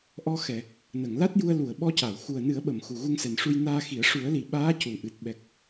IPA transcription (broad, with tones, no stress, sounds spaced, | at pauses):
ʔ ɔ˧ x ɛ˨˩˨ | n ə˨˩˨ ŋ l a˦˥ t̚ j u˧ ə̯ l u˨˩˨ ə̯ ɓ ɔ˧ c a˨˩˨ w x u˨˩ ə̯ n ɨ˨˩˦ ə̯ ɓ ə˨˩˨ m x u˨˩ ɣ u˧ ŋ s ɛ˨˩ n ʂ u˧ j n aː˧ x i˨˩˦ ə̯ ʂ u˨˩˦ ə̯ l i˨˩ ɓ aː˧˥ c u˨˩˨ ʔ ɨ˨˩ t̚ ɓ ɛ˨˩ k̚